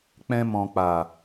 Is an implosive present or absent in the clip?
absent